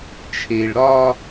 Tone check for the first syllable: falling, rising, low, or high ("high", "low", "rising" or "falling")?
low